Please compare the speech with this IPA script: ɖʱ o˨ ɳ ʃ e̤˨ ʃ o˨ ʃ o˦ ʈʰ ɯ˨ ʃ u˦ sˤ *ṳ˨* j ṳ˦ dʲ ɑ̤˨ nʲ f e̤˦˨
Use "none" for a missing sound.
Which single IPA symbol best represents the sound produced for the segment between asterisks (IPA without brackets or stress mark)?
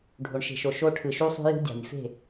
ṳ˦